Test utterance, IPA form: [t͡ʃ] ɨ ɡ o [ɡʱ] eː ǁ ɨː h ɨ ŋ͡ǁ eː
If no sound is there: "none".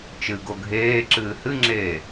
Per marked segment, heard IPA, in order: t͡ʃ, ɡʱ

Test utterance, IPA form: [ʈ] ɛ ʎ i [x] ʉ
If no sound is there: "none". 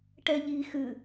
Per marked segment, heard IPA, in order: ʈ, x

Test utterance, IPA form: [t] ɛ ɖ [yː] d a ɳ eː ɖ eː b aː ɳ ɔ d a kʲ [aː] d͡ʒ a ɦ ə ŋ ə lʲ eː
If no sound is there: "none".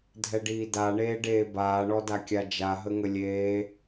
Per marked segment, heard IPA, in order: dʱ, iː, a

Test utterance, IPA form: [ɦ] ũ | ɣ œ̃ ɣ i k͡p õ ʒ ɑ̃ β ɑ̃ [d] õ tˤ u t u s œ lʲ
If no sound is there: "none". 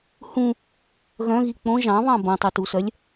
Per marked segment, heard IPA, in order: h, b

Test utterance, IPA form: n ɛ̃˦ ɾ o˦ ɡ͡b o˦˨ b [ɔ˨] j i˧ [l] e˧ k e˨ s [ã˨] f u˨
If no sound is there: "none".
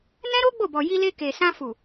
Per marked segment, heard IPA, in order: ɔ˨, l, ã˧

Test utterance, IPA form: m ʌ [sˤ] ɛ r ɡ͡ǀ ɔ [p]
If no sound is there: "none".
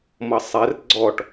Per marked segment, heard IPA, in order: sˤ, ʈ

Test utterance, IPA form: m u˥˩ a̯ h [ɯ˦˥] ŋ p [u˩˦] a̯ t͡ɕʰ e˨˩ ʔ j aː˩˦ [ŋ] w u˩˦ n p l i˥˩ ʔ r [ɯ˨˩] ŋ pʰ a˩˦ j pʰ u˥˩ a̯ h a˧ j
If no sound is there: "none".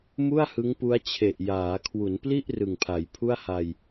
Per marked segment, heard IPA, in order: ɯ˦˥, u˦˥, kʰ, ɯ˨˩

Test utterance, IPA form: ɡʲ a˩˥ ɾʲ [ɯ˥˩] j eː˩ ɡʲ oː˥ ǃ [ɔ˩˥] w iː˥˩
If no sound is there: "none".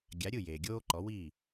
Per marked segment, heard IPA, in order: ɯ˥˩, ɔ˩˥

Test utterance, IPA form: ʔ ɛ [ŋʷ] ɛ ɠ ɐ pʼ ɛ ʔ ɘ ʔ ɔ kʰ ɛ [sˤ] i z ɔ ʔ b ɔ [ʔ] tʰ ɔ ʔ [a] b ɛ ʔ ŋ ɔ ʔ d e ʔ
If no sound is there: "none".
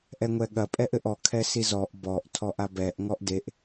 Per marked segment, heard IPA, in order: ŋʷ, s, ʔ, a

